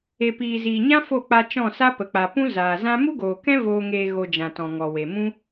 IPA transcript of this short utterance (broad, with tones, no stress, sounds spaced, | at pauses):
e˨ p iː˨ z iː˨ ɲ ã˦ f o˦˨ k͡p a˧ t͡ʃ ɔ̃˦˨ s a˦ p ə˨ k͡p a˨ p ũ˦ z aː˨ z ã˦ m u˦ ɡ oː˨ k ɛ̃˦ v oː˧ ŋ eː˧ ɣ o˧ d͡ʒ ã˨ t ɔ̃˨ ŋ ɔ˨ w e˨ m ũ˦